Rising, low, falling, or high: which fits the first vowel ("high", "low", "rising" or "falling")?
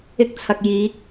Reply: high